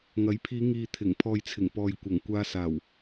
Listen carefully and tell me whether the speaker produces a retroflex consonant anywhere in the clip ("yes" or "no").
no